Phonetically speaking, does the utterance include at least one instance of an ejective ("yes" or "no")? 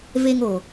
no